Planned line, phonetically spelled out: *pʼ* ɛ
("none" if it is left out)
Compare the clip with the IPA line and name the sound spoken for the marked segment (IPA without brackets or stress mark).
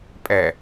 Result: pʼ